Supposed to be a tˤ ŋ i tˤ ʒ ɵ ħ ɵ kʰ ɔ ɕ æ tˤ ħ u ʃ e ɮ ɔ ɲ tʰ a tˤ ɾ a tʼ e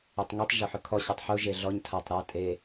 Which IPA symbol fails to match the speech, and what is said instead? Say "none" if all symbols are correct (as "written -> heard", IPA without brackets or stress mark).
ʃ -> ʒ